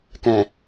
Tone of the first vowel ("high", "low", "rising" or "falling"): low